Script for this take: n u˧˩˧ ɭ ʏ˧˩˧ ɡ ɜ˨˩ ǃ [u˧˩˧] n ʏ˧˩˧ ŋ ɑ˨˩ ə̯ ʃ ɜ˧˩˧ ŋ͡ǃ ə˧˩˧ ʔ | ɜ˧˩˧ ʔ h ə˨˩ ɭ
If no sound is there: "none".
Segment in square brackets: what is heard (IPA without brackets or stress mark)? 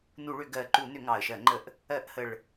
u˧˩˧